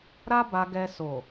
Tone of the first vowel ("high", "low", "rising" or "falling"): high